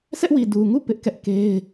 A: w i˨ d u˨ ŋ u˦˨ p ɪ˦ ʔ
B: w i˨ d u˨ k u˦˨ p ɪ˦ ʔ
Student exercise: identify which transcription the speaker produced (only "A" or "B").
A